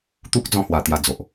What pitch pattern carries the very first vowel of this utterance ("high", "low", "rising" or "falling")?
high